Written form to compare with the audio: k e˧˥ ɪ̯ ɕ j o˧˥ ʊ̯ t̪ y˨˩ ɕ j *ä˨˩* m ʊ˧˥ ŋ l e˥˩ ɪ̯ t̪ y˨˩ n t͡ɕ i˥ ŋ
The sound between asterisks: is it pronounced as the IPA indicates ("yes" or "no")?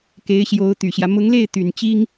no